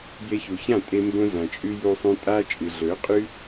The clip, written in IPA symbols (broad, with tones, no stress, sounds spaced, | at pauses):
j e˧ ç u˨ ç ã˦˨ tʼ e˦ m b õ˦ z ã˨ t͡ʃʼ ʉ˦ j u˧ sˤ ũ˧ tʼ a˦ t͡ʃʼ ɨ˨ ɮ ɵ˨˦ qʼ ʉ˦